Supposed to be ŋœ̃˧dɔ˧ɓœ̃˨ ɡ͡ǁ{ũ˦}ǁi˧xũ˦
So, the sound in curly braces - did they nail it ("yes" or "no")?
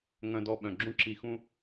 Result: yes